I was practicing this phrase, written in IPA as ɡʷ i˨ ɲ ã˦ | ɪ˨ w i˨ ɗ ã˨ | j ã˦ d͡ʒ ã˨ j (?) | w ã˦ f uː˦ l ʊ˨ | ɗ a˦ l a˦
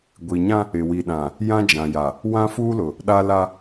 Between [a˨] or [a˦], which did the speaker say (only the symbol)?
a˨